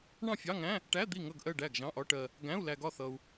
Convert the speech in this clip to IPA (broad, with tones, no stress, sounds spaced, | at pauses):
ɳ ɑ̃˥˩ fʲ ɑ˧˥˧ ŋ æ̃˧˥˧ | ʈ æ˧˥˧ d̪ i˥˩ ŋ ʌ˥˩ ɡ ʔ ɜ˥˩ ɖ æ˥˩ ɡ ʒ ɑ̃˧˥˧ ʔ ɒ˧˥˧ ʈ ɜ˧ | ɡ æ̃˧˥˧ u̯ l æ˧ ɡ ɒ˥˩ θ ʌ˧ u̯